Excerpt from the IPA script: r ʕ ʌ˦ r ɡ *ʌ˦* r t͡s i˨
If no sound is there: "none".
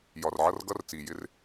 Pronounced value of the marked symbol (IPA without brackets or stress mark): ʌ˦